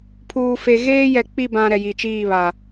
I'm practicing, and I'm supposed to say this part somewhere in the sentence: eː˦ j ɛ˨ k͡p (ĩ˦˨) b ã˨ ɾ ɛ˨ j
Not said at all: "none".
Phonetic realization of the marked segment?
i˦˨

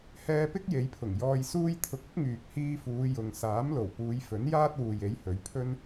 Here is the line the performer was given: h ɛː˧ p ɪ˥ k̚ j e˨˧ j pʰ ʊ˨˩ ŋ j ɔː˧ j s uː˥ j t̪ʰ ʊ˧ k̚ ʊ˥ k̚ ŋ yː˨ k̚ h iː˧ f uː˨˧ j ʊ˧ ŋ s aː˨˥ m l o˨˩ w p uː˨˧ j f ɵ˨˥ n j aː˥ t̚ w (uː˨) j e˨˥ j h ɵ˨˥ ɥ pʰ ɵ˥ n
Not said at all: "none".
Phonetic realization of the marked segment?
uː˨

